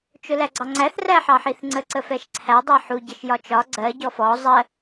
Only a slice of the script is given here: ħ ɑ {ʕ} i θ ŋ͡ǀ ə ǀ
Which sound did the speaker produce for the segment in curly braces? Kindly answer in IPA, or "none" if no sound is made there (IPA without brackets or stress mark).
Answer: ħ